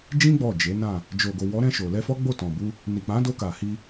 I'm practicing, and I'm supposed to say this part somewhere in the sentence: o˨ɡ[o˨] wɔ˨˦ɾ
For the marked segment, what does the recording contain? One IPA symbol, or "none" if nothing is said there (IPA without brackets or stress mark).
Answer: o˨